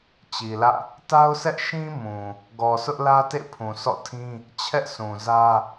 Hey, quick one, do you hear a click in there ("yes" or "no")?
no